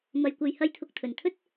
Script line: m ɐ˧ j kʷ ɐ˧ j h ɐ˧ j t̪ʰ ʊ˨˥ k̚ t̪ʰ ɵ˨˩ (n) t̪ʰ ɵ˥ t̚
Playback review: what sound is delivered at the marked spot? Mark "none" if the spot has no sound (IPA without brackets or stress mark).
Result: n